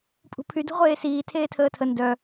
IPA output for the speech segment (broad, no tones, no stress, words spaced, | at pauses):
pʼṳpʰy dṳʁʷeːsiː tʰeːtʰəːtʰə ndœ